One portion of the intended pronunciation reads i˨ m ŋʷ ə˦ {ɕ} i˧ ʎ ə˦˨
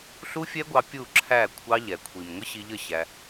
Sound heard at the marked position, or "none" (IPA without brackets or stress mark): ɕ